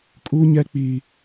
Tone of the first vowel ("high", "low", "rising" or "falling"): high